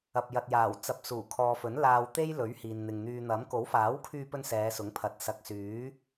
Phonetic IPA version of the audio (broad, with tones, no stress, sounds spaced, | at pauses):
ɐ˧ p̚ j ɐ˨ t̚ j aː˨˩ w t͡s ɐ˨˥ p̚ s uː˨˩ kʰ ɔː˨ f ɵ˨˥ n l aː˧ w t̪ e˥ j l ɵ˨˥ ɥ h iː˨ n n̪ ɪ˨ ŋ n̪ yː˨ n̪ ɐ˨˥ m k o˨˥ w f aː˨˥ w kʰ yː˧ p ɵ˧ n s ɛː˨˧ s ʊ˨˥ ŋ pʰ ɐ˨˥ t̚ s ɐ˨ k̚ s yː˨˥